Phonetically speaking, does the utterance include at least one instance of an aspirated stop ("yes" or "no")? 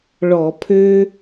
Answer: yes